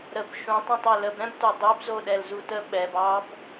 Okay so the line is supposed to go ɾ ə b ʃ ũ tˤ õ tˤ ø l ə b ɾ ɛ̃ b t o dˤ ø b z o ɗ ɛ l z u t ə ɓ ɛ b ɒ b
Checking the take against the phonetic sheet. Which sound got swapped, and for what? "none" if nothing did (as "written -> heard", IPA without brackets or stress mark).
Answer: ɒ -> ɑ